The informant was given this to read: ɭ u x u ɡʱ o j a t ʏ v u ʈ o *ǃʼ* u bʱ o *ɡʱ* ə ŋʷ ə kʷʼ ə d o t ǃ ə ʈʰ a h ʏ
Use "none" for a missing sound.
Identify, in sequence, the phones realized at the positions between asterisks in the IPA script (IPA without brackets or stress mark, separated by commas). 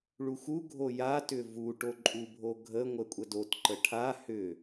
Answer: ǃʼ, ɡʱ